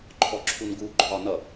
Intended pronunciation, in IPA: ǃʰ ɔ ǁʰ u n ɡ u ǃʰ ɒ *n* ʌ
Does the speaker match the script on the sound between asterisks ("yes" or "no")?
yes